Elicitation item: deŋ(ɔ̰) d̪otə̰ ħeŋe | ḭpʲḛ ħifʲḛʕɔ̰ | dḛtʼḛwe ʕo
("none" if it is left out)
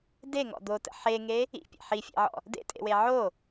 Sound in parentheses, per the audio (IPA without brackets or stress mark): ɔ̰